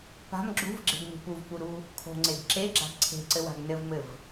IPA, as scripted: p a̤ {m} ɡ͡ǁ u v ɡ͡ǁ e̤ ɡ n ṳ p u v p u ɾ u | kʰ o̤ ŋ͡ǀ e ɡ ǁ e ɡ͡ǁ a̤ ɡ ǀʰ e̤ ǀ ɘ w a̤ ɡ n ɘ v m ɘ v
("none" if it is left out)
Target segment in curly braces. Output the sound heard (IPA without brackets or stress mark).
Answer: m